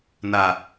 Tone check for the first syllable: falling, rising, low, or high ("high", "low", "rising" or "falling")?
low